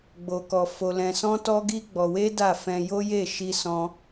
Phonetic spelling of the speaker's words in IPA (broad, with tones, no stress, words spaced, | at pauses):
ɡ͡bo˧kɔ˧ fo˧lɛ̃˧sɔ̃˦ tɔ˦ɡi˦ ɡ͡bɔ˧we˦ da˦˨ fɛ̃˧jo˦je˦˨ ʃi˧sɔ̃˧